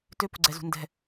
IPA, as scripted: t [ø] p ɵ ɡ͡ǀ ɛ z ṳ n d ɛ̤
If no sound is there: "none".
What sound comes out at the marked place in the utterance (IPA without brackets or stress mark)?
ø